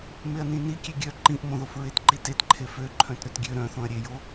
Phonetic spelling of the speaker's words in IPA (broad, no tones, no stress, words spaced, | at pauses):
meɐ̯nĩni kʲeɡʲœ ǃĩʔmõðof ɹetǃitetǃʰe fø ǃʰœ̃tɾœtɡʲø ɾœ̃ θõɐ̯ɾʲejo